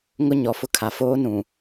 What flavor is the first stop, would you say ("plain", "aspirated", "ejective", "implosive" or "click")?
aspirated